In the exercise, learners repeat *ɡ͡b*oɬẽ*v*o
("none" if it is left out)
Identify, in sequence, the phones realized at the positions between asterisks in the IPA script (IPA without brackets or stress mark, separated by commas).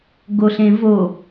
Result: ɡ, v